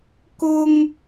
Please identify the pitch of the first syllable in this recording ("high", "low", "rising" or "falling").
high